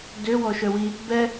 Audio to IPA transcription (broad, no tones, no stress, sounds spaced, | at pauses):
d ø w ɔ ʃ œ w i | b ɛ